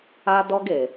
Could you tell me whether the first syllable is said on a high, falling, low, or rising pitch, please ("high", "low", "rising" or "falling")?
high